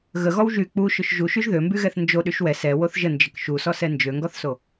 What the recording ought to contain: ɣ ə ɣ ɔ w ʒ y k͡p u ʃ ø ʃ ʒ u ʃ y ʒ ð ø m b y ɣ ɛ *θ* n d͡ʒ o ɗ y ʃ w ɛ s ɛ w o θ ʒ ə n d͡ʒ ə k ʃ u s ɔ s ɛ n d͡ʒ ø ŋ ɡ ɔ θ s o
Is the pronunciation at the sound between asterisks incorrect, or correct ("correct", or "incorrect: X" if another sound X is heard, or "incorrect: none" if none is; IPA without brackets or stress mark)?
correct